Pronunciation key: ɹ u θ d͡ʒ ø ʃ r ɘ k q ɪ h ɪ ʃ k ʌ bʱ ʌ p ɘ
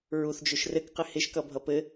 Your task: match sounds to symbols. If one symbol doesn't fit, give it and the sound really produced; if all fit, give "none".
none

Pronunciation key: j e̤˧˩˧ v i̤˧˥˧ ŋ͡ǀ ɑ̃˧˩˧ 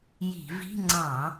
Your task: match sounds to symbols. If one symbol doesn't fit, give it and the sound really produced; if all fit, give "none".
e̤˧˩˧ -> i̤˧˩˧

